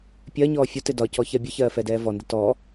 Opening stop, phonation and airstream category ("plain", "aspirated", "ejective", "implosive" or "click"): plain